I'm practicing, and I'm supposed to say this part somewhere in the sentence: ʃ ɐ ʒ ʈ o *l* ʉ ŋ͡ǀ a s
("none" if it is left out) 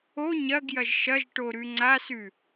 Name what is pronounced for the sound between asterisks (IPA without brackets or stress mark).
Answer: ɾ